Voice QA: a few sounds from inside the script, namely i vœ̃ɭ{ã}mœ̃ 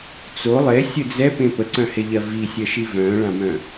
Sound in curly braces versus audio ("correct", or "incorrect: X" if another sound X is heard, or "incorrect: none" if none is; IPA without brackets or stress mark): correct